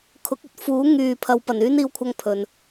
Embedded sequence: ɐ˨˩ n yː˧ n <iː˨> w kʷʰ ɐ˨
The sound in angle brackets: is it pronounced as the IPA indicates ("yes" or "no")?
yes